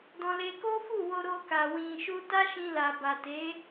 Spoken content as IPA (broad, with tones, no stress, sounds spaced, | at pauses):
d ɔ̃˧ l e˧ k o˦ f u˦˨ w o˧ ɾ o˧ k a˨ w ĩ˨ ʃ u˧ t a˦ ʃ ĩ˧ l a˨ b a˨ t e˨˦